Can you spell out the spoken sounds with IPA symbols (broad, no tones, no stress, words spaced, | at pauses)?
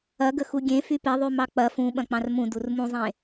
ɐɡəxu ɡʲẽ fypeðˤy mɑk͡pɐ fũ ɓɐ̃k͡pɑ̃rmũ durmũzˤẽ